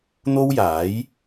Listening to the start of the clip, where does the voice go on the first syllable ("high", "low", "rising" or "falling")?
high